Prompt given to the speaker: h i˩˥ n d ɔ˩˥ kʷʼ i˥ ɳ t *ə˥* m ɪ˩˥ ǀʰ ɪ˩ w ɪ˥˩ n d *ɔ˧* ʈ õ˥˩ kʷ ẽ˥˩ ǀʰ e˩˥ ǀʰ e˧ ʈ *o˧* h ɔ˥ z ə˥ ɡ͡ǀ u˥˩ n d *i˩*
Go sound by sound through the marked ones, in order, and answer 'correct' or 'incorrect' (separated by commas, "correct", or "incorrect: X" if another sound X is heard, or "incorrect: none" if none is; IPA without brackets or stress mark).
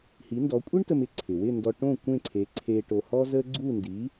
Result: incorrect: ə˧, correct, correct, incorrect: i˩˥